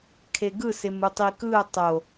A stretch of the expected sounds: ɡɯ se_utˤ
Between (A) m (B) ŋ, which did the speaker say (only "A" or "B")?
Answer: A